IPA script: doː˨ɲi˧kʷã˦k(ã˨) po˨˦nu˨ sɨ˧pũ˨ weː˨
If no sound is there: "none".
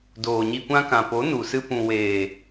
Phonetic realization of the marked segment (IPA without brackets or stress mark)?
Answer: ã˨